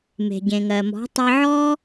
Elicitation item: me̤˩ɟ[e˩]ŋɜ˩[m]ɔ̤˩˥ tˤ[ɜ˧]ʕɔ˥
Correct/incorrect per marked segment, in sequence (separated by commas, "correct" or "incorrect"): incorrect, correct, correct